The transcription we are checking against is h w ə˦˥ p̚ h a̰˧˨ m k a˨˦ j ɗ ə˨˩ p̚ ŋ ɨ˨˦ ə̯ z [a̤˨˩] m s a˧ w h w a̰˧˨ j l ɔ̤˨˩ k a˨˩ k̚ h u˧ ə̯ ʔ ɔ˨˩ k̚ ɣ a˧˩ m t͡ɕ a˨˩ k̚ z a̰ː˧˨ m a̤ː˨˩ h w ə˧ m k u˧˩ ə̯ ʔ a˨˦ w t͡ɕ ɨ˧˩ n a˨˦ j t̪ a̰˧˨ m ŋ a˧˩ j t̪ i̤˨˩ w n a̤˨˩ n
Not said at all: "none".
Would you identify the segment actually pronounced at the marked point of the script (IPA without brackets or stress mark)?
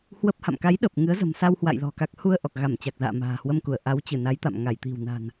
ə̤˨˩